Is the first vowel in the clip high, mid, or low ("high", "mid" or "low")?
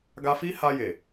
low